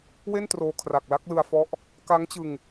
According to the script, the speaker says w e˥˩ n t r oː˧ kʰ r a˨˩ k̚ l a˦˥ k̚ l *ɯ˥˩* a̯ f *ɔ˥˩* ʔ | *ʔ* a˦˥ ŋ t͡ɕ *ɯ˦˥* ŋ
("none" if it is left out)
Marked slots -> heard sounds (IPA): ɯ˧, ɔ˦˥, k, ɯ˧

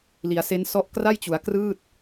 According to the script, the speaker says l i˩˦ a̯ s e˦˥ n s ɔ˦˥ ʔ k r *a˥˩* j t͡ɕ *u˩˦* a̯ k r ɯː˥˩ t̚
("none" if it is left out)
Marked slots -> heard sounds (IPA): a˥˩, u˩˦

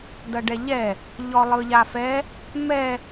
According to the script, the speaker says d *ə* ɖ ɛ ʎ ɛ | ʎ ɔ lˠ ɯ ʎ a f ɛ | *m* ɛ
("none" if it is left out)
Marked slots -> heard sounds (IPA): ʌ, m

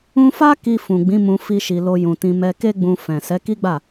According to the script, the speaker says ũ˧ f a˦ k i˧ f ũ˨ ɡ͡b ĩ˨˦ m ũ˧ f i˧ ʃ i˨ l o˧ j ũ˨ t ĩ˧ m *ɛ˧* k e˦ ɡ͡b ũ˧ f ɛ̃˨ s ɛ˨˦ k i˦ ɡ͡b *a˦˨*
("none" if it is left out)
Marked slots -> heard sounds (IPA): ɛ˧, a˦˨

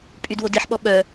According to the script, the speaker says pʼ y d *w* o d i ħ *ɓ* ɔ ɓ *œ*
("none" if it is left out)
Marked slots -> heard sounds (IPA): w, ɓ, œ

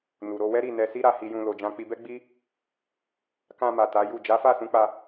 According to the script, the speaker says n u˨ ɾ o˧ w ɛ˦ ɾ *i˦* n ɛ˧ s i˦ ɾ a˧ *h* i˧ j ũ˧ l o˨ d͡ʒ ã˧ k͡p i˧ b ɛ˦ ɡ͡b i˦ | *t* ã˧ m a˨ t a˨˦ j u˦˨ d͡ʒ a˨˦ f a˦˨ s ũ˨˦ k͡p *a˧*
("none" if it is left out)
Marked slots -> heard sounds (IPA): i˦˨, h, k, a˧

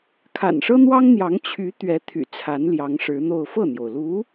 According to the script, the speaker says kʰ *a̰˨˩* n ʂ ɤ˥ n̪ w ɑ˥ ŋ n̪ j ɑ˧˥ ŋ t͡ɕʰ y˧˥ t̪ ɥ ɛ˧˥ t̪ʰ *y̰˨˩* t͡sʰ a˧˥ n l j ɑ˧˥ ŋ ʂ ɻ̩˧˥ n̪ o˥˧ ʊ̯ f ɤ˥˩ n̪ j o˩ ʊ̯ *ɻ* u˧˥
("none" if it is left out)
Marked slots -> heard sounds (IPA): a̰˨˩, y̰˨˩, l

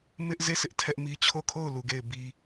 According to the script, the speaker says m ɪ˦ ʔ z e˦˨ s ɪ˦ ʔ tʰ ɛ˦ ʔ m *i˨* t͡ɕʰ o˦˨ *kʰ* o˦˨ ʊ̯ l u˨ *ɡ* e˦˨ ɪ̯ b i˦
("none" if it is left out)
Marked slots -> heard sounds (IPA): i˦, kʰ, ɡ

